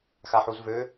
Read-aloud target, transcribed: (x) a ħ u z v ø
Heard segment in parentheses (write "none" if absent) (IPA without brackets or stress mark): x